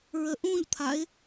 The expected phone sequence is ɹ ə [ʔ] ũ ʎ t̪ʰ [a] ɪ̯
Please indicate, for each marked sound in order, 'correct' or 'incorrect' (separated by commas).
correct, correct